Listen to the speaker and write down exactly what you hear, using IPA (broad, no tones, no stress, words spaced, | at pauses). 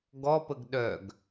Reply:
ɡɔpəɡ ɗœɡ